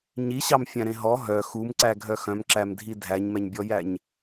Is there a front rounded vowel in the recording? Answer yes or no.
yes